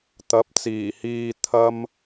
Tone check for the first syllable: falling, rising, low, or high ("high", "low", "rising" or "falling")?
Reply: rising